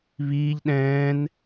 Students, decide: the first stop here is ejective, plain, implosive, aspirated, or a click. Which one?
implosive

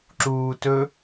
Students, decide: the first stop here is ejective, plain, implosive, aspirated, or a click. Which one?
click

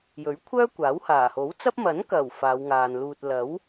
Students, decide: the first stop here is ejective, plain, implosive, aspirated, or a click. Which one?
aspirated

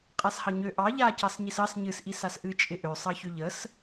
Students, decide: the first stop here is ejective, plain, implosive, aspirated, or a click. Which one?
ejective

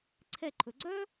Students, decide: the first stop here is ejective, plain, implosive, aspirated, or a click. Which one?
click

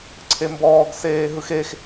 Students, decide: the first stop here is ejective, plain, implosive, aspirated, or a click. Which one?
click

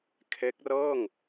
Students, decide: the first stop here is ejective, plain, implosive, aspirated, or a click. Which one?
aspirated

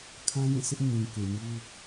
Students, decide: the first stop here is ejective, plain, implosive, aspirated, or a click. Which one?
aspirated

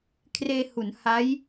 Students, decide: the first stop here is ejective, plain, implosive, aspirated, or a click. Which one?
aspirated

